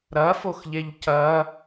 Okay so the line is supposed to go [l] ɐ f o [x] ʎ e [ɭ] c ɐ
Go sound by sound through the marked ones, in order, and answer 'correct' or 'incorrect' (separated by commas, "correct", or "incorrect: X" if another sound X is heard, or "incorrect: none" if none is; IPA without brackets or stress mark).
incorrect: ɾ, correct, incorrect: ʎ